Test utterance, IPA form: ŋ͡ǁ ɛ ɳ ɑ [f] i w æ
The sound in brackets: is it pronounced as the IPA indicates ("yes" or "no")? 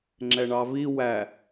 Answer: no